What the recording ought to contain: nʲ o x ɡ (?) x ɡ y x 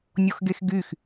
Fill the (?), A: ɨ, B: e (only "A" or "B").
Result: B